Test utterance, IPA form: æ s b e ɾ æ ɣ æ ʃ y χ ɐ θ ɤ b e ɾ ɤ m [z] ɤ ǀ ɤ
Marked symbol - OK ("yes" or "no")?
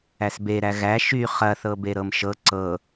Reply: no